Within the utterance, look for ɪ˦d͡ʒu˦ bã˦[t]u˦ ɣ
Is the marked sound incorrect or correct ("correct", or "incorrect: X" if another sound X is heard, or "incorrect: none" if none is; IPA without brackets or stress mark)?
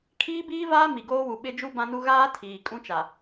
incorrect: n